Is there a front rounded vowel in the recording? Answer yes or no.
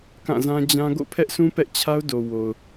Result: no